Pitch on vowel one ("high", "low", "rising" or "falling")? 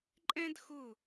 high